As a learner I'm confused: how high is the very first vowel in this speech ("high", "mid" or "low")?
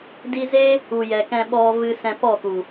high